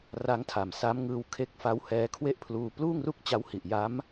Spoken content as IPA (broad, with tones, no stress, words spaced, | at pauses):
ra˦˥ŋtʰa˨˩msa˦˥mŋɯː˧w kʰe˦˥k̚fa˦˥w hɛː˦˥kʰwe˥˩ʔpʰluː˧ pluː˥˩ŋru˥˩k̚t͡ɕa˦˥whi˨˩ʔ ja˦˥m